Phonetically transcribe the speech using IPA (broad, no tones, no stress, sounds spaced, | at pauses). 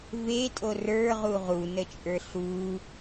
v e tʼ o r ə˞ ʁ u ʁ u n ə t͡ʃʼ ə˞ ɬ u